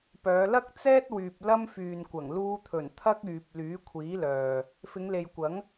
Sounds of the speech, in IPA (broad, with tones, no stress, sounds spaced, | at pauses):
p œː˨˧ l ɐ˥ k̚ t͡s ɛː˥ t̚ w yː˨ p̚ l ɐ˥ m f yː˨ n kʷ ɐ˨˩ ŋ l uː˧ t̪ʰ ɵ˨˩ n t̪ʰ ɐ˥ k̚ yː˨ p̚ l yː˨˥ kʷʰ iː˨˥ l œː˨ | f ɪ˨˧ ŋ l e˨ j kʷ ɐ˨˥ ŋ